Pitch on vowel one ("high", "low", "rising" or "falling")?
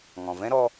low